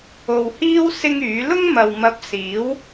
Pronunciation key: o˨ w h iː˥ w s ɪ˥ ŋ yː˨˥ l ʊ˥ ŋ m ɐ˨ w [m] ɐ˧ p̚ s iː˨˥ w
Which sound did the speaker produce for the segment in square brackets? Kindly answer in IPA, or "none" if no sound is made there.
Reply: m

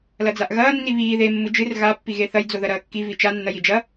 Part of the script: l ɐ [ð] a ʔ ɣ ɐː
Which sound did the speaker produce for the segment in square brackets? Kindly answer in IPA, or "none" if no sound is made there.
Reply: d͡z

